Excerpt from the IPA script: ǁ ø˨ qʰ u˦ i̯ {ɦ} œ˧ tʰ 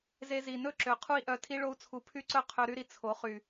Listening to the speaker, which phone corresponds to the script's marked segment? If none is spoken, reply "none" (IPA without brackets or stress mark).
ʔ